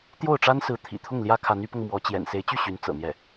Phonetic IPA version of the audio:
t̪ j o˥˩ ʊ̯ ʈ͡ʂ a˥ n s ɹ̩˧˥ t̪ʰ ḭ˨˩ t̪ʰ ʊ˥˩ ŋ l j ä˥ kʰ a˧˥ n y˧˥ p ɤ˧ ŋ m w ɔ˧˥ t͡ɕ j ɛ̰˨˩ n s e˧˥ ɪ̯ t͡ɕ y˥˩ ɕ y˧˥ n t͡s ɤ̰˨˩ n̪ j ɛ˥˩

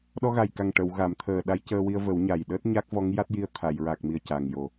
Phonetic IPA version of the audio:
ɗ ɔ˧ ɣ a˨˩ j k a˨˩ ŋ ʈ ə˨˩˨ w ɣ a˨˩˨ m t̪ʰ əː˨˩ ɗ a˧˥ j c əː˧ w i˧ ə̯ v ə˨˩˦ w ɲ a˨˩ j ɗ əː˦˥ t̚ ɲ a˦˥ k̚ v ɔ˧˥ ŋ j a˦˥ t̚ j i˧ ə̯ t̪ʰ a˨˩˨ j ɹ a˨˩ k̚ m i˨˩ ə̯ c a˨˩ ŋ j o˨˩˦

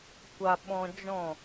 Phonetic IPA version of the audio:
kʷ a˧ ɓ ɔ̃˧ d͡ʒ ɔ̃˦˨

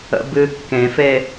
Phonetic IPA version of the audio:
ə̰ b ɨ kː ẽ f e

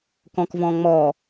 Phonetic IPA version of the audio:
k ɔ̃ k v ɔ̃ ŋ͡m ɔ

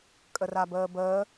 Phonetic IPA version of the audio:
kʼ ə r a b əː b əː

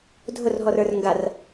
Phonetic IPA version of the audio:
dʱ ʊ r ɦ ɔ r ə˞ r ŋ ɡ a r

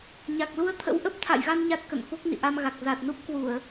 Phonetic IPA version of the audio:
ɲ a˨˩ k̚ l u˧ ə̯ t̪ʰ ə̰˧˥ w ʔ ə˦˥ p̚ t̪ʰ a̰˧˨ j ɣ a˧ n ɲ a˦˥ t̚ k ə̰˧˨ n f o˦˥ k̚ n ḭ˧˨ ʔ a˧ m ɣ a˨˩ k̚ z a˨˩ t̚ n u˦˥ p̚ k w u˧˩˨ ə̯

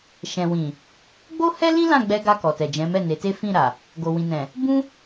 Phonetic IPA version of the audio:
ʃ ɛ̃˨ w ĩ˨ | ɡ͡b o˦ h ɛ˦ l ĩ˦ l ã˦˨ ɡ͡b ɛ˧ ɡ a˧ k ɔ˨ t ɛ˨ d͡ʒ ɛ̃˨˦ m ɛ˦˨ n e˨˦ t e˦ f ĩ˦˨ ɾ a˨ | ɡ o˨ w ĩ˨ n ɛ̃˨ | b ũ˦

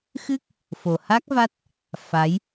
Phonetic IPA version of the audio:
x ɨ˦˥ k̚ | f o˨˩ h a˦˥ k̚ v a˦˥ t̚ | f a˨˦ j

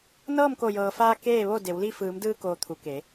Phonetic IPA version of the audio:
n ɤː˥˨ m k o˧˩ j ɤː˩ f aː˧ k eː˥˨ ʋ o˥˨ d e˩˧ w l i˥˨ f ɯː˩˧ m d ɯː˧ k oː˩ t̪ʰ u˩˧ k e˩˧

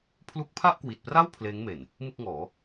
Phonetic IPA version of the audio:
pʰ l u˦˥ k̚ pʰ a˥˩ ʔ k w i˨˩ t̚ p r a˥˩ w pʰ l eː˦˥ ŋ m e˨˩ n | m ɯ˥˩ k̚ ŋ ɔː˩˦

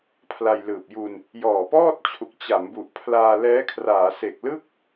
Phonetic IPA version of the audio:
pʰ l a˧ j l ɯː˨˩ p̚ j u˧ n | j ɔː˨˩ p ɔː˥˩ t̚ t͡ɕʰ u˨˩ k̚ t͡ɕ a˩˦ m b u˨˩ ʔ pʰ l aː˧ l ɛː˦˥ kʰ r aː˩˦ s e˨˩ k̚ l ɯ˥˩ k̚

